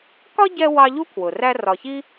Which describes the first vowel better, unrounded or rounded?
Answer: rounded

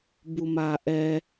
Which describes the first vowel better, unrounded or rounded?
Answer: rounded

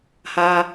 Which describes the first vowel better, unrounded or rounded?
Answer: unrounded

